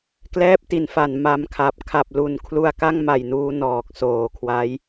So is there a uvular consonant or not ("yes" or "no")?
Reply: no